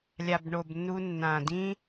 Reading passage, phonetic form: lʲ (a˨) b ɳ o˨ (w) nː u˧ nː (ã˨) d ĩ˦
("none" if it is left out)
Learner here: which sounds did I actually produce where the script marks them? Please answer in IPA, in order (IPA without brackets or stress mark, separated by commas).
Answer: a˨, b, ã˨